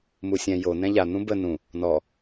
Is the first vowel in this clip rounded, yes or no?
yes